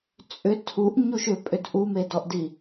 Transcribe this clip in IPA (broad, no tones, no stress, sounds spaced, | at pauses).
t͡sʼ ʏ tʰ u ʔ ɲ u ʃ ʏ pʼ ʏ d ʔ u m e d ɔ ʔ d i